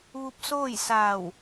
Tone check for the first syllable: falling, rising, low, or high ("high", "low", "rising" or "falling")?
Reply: rising